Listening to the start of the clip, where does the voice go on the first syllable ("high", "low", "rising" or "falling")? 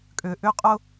low